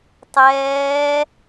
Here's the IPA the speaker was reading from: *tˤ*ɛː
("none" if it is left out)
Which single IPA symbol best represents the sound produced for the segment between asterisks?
tˤ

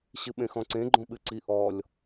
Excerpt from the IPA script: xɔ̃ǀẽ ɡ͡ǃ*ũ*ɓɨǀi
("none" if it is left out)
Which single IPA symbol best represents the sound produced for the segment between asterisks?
õ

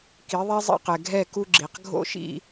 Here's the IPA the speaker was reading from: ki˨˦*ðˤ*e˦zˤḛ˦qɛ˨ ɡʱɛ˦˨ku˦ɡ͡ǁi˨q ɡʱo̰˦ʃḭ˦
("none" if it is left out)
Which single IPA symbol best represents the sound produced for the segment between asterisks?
ðˤ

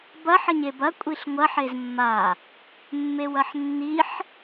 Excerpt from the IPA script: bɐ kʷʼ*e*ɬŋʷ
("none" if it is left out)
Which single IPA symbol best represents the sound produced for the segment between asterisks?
i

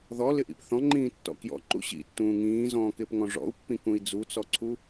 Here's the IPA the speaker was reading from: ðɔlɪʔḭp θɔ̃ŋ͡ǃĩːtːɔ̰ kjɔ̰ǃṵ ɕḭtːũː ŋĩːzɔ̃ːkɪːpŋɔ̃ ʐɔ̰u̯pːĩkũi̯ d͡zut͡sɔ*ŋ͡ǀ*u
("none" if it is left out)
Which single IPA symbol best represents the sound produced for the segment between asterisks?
ǀʰ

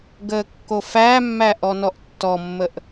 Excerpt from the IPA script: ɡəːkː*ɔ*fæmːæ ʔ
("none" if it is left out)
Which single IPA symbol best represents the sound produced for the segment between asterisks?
o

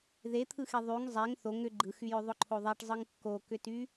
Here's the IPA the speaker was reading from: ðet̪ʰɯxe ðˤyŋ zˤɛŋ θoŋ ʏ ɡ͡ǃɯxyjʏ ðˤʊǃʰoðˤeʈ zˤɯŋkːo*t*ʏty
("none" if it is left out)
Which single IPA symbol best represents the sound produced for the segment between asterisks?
k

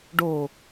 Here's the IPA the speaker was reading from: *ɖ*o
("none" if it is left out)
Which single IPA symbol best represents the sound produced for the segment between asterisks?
ɖ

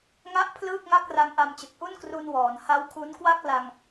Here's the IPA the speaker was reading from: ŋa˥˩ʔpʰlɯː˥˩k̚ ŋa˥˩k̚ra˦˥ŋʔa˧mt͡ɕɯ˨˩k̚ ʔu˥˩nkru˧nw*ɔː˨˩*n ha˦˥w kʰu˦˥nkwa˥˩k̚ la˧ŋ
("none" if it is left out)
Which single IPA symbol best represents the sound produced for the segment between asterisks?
ɔː˩˦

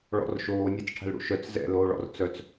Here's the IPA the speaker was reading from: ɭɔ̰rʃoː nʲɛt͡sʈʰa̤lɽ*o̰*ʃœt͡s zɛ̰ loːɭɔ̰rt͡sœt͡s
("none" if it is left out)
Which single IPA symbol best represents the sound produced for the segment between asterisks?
ṵ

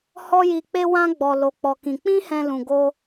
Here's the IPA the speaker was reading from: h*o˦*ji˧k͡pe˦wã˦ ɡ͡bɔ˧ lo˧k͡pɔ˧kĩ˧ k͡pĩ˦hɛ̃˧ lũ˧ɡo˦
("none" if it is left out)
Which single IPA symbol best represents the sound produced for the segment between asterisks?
ɔ˦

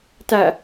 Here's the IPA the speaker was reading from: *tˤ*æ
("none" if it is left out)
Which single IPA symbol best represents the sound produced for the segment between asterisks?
t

